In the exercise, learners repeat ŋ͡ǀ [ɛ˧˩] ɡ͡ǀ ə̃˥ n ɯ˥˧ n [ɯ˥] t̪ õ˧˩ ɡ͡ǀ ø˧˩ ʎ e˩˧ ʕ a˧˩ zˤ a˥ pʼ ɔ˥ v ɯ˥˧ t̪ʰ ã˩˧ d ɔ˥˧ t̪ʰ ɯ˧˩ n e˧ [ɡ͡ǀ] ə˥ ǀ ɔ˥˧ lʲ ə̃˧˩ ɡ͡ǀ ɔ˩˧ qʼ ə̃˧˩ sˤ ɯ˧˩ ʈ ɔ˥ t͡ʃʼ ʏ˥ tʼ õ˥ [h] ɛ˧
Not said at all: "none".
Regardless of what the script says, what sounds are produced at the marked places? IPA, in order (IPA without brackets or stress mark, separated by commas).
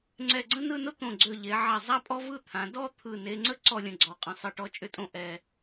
ɛ˧˩, ʊ˥, ŋ͡ǀ, ʔ